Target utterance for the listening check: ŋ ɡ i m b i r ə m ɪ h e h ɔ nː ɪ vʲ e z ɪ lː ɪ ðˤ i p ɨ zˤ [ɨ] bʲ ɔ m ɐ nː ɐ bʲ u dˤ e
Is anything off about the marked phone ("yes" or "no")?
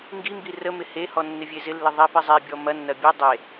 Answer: yes